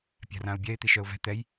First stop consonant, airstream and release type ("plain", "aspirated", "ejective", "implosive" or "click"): plain